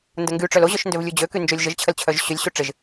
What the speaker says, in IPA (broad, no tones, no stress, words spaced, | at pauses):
ndəŋɡyʈ͡ʂœl oʑœʃ ndøvlʲud͡ʑøky nd͡ʒolʲʒəʒt͡ɕʰəl t͡ɕʰœʒɕølʲɕu ʈ͡ʂɪʒ